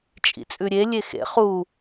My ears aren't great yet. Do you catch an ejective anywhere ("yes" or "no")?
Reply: yes